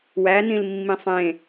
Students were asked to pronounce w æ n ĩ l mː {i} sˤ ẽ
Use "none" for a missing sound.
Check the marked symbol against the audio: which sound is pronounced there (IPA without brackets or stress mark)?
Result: ĩ